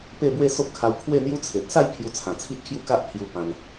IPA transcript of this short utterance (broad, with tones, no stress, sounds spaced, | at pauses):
p e˥˧ b w e˥˧ s o˦ p̚ kʰ a˧ w kʰ w e˥˧ n̪ j u˦ t͡sʰ e˨ t̚ s a˥˧ j pʰ j u˧ t͡sʰ ã˨˩ t͡sʰ i˦ ʔ kʰ j u˥˧ k a˦ ʔ pʰ j u˧ p ã˧ n